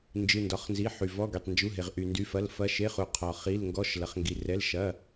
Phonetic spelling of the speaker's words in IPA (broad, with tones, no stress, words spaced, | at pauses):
nd͡ʒɨ˩˧˩ ndɒ˩˧˩χnzi˩˧˩ ħy˩vɔ˩˧˩ ɡy˩tˤnd͡ʒu˩˧˩ɦe˩ʁ ʔy˩ndy˩˧˩fɐ˩˧˩l fɐ˩˧˩ʃe˩˧˩χu˩ qʰɒ˩ χi˩˧˩l ŋɡɔ˩˧˩ʃlɐ˩χŋɡi˩rɛ˩˧˩l ʃɐ˩˧˩